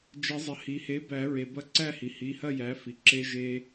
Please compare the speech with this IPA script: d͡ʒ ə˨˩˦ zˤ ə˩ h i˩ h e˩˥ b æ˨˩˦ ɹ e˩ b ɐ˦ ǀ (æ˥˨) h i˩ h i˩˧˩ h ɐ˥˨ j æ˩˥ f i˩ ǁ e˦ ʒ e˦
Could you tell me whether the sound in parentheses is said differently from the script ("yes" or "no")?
no